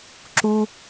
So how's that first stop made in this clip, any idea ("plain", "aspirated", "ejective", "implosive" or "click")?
click